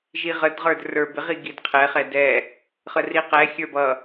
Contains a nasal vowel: no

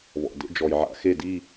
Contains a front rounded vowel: no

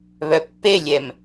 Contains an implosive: no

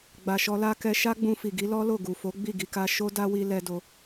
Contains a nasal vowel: yes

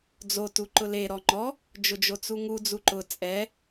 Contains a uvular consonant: no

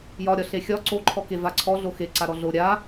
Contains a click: yes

